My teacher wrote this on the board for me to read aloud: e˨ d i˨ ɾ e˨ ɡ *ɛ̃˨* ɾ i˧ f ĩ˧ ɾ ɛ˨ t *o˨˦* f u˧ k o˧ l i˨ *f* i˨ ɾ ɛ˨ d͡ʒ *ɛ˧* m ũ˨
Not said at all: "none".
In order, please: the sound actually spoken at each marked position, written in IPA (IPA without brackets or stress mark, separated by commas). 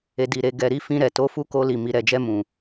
ɛ˨, o˨˦, m, ɛ˧